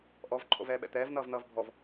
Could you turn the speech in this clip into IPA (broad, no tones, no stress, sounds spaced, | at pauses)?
ʔ ɔ v ǃʰ o̰ v ɛː ɓ ɛ̰ t̪ ɛː v n ʌː v n̪ ʌː v bʱ ɔ v